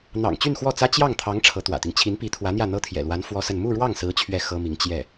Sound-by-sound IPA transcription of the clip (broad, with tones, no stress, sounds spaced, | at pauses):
n̪ ɑ̰˨˩ ŋ t͡ɕ y˥˧ n x w ɔ˥˩ t͡s ä˥ t͡ɕ j ɑ˥˩ ŋ t̪ʰ ɑ˧˥ ŋ ʈ͡ʂʰ ɤ˧˥ t̪ w ä̰˨˩ t̪ i˦ ŋ t͡ɕʰ i˧˥ n p i˧˥ t̪ʰ w ä˧˥ n̪ j ä˥˩ n̪ ɤ˥ t̪ʰ j ɛ̰˨˩ l w a˧˥ n f w ɔ˥ s ə˥˧ n m u˥˧ ɻ w ɑ˥˩ ŋ s ɹ̩˧˥ t͡ɕʰ ɥ ɛ˥˩ x ɤ˥ m i˧˥ ŋ t͡ɕ j ɛ˥˩